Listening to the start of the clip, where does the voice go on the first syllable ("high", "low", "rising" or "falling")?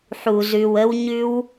low